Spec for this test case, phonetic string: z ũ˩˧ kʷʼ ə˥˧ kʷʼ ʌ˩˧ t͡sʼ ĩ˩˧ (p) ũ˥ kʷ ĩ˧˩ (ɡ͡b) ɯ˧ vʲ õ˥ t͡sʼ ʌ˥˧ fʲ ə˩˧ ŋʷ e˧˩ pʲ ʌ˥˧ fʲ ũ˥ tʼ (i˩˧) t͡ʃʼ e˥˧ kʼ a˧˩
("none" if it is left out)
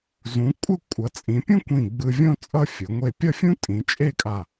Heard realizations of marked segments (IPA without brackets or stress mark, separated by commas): pʲ, ɡ͡b, ĩ˩˧